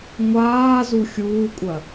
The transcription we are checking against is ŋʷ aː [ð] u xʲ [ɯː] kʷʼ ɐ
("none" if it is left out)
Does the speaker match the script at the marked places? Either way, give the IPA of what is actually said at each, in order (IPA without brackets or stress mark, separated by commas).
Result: z, uː